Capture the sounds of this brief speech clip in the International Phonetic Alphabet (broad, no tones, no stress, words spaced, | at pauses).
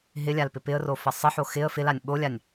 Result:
ɦɪlʲalpɪ pɪə̯rofə sˤəħo xɪə̯ fɪlanʲ ɓolʲanʲ